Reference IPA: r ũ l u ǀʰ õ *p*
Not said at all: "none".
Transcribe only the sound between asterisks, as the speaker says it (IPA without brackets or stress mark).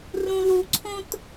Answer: t